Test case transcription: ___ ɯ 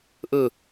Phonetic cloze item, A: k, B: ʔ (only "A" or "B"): B